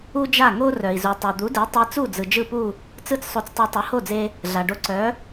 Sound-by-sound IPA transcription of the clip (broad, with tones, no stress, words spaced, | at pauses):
u˥d͡ʒa˥˩ŋo˥ rœ˩i̯zu˩ tˤo˩ d̪u˩˥de˩˥ tˤe˧t͡su˥˩d͡zɯ˩ d͡ʒɯ˥˩pu˥˩ | t͡sɯ˥˩t͡ssˤo˧t͡stˤe˧ tˤu˩˥ho˥˩d͡ze˧ | ɮa˩ɖo˧ǀœ˩˥